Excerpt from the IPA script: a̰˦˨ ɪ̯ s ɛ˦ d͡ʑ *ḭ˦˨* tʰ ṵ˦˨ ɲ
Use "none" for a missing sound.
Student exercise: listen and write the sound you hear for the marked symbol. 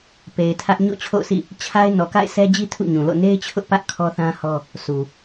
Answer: i˦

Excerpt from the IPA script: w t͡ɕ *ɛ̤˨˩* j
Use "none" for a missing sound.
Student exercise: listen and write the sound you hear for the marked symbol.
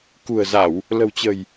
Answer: ə̤˨˩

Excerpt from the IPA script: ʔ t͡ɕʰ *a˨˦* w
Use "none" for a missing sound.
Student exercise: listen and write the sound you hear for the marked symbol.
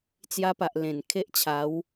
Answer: a˨˦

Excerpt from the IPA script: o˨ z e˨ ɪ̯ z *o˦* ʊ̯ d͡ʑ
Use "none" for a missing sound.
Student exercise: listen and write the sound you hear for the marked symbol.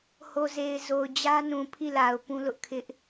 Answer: o˨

